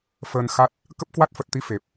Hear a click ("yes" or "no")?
no